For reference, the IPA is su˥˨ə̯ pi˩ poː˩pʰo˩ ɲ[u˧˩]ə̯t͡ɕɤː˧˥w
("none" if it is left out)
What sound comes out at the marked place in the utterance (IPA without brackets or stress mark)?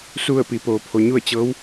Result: u˥˨